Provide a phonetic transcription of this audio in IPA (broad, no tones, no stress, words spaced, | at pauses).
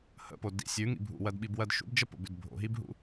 hə̰po dḭ sʲʉŋḭ bʱṵwɜdɓibwɜd ʃṵbd͡ʒəpo̰bʉd bʱo̰ɦibɦṵ